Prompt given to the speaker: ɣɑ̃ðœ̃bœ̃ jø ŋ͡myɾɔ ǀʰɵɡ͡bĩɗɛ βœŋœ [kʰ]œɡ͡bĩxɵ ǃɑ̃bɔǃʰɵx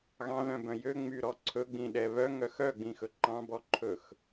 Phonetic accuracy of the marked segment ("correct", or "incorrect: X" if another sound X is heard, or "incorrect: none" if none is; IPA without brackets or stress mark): incorrect: x